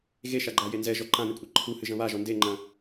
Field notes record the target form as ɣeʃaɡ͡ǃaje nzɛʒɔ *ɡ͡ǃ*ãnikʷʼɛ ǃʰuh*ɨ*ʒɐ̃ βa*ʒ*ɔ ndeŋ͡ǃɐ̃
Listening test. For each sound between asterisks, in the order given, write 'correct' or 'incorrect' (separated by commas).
incorrect, correct, correct